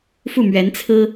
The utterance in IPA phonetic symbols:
fu˥˩mɥɛ˧˥nt͡sʰɹ̩˥

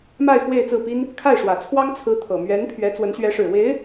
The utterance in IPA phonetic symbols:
ma˥˧ɪ̯ xwe˥˧ɪ̯t͡sɹ̩˥˩pi˥n | kʰa˥˩ɪ̯ʂwä˨˩t͡sʰwɑ˥ŋ t͡sʰɹ̩˧˥ t̪ʰɤ˨˩ mɥɛ˧˥n pʰɥɛ˧˥t͡swə˧˥nɕɥɛ˧˥ʂɻ̩˨˩ we˧˥ɪ̯

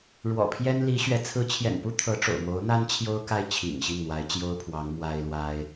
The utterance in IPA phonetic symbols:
ɻwɔ̰˨˩pʰjɛ˥nli˧˥ɕɥɛ˧˥ t͡sʰɹ̩˧˥t͡ɕʰjɛ̰˨˩npu˥ t̪ʰɤ˧˥ʈ͡ʂo̰˨˩ʊ̯ mo˧˥ʊ̯n̪a˥n t͡ɕʰjo˥ʊ̯ka˥˩ɪ̯ t͡ɕʰḭ˨˩ŋ ɕi˥˩ŋn̪wa˧˥ɪ̯t͡ɕjo˥ʊ̯ pʰwɑ˧˥ŋ mwa˥ɪ̯lwa˥ɪ̯

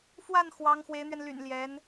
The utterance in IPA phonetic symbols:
fwa˥˩n xwɑ˧˥ŋ xwe˧˥ɪ̯n̪ɥɛ˧n ly̰˨˩n ljɛ˧˥n

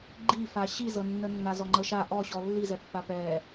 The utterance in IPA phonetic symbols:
ɡ͡ǃifa ɕizɤnːənːa zɔŋ͡ǃɤʃa ʔɔɕɔ lːizɛ pːapɛ

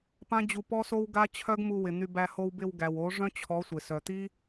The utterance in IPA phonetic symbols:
pã˦d͡ʑu˧pɔ˦so˦w ɡa˦t͡ɕʰœ˦ɡmu˧ wɪ˨n̪y˧bæ˧ ho˧wbɪ˧wɡæ˨wo˨˦ ʐœ̃˦t͡ɕʰɔ˨˦ sʷɪ˨sœ˨t̪i˦

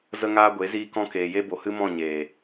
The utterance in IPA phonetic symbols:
zə˦ŋaː˦ɡʷe˨˦ ziː˦kɔ̃˦ keː˨je˦ bo˨hɨ˦mɔ̃˦˨ ɲeː˨

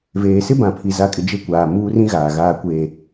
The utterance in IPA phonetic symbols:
veː˨sɪ˦ bã˨pʰi˨za˨˦kʼɪ˨ d͡ʒe˦kʷaː˨ muː˦rĩ˦ɣaː˨ ɣaː˨kʷeː˨

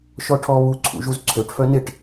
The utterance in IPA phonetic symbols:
ʃɔʈʰɔ βu ǀʰṵʒuzǀʰøʈ fœnɪʈ

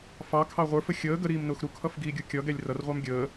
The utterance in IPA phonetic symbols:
fɑkʰɑ ʁʷə˞fə xʲəː ɡəɾiːmnʊːx ɾukʰʌfɡiːɡʲu kʲʌɡɛlʲ rʌrʁʷɑm ɡʲəː

